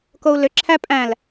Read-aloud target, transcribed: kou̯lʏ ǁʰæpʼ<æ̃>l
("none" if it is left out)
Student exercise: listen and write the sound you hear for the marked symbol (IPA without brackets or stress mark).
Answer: æ̃